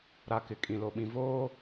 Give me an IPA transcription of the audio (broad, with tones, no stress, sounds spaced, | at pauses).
ɾ a˨ k ɪ˨ kʼ ĩ˨ l o˨ ɓ ĩ˨ v oː˦